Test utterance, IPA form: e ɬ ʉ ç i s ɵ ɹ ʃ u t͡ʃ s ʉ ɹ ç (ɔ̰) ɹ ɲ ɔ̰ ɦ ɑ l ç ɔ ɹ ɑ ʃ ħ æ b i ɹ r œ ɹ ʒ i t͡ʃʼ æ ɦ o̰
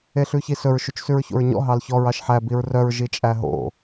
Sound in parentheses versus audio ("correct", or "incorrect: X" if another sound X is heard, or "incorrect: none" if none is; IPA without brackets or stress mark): incorrect: o̰